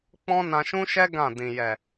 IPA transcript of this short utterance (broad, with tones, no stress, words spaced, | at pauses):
k͡pɔ̃˦ nã˧ʃũ˦ʃɛ˦ ɡã˦˨ dĩ˨ jɛ˨